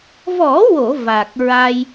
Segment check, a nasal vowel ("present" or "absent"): absent